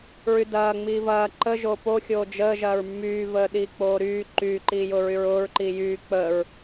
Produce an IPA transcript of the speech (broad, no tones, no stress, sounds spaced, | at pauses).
ɹ y d ɐː ŋ͡m iː v ɐː ǃ ə ʒ o p o xʲ oː d͡ʒ əː ʒ ɐː ɹ mː yː v əː ɗ iː k͡p oː ɾ yː ǃ yː ǃ iː j ʊː ɹ y ɹ ʊː ɹ ǃ i j yː k͡p əː ɹ